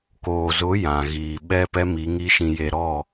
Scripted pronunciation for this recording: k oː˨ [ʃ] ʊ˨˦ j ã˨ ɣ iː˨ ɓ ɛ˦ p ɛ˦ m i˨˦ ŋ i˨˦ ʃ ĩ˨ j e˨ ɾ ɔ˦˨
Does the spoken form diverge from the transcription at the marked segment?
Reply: yes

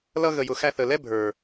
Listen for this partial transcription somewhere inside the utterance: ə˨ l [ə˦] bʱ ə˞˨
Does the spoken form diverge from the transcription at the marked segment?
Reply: yes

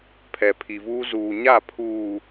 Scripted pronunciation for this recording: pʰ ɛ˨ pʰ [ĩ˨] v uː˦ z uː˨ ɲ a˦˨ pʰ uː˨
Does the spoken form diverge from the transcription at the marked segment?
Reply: yes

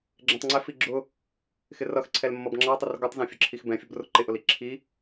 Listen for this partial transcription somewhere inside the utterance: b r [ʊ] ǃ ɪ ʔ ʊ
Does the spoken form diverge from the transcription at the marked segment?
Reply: no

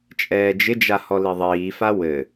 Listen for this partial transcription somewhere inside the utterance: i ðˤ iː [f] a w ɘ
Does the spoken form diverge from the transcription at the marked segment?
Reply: no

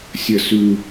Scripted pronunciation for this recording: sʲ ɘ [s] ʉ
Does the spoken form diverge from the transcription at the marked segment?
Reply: no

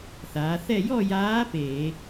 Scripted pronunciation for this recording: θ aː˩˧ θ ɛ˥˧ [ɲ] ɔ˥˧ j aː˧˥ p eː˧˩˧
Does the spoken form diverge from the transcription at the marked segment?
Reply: yes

